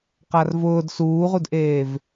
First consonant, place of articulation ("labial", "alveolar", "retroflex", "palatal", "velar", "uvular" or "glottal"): uvular